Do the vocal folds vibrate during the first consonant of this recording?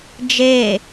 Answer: yes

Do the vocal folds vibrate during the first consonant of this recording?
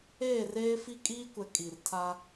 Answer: yes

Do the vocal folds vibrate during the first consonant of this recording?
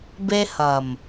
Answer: yes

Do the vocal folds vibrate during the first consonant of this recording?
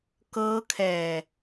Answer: no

